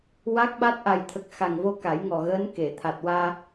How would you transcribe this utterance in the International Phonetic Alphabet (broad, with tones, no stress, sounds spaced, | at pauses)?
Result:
w a˦˥ k̚ ɓ a˦˥ t̚ ʔ a˨˩ j t̪ʰ ə˨˩ k̚ x a˨˩ ŋ v o˧ k a˨˩˦ j ŋ ɔ˨˩ ɣ əː˧˥ n k e˨˩˨ t̪ʰ a˨˩ t̚ w aː˧